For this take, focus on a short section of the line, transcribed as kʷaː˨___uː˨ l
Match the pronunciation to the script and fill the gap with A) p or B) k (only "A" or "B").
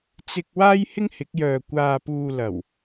A